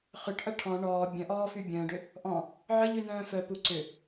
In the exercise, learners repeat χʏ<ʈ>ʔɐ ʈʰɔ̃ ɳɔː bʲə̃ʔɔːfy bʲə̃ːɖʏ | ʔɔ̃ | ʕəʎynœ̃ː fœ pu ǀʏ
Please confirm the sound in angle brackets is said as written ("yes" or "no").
yes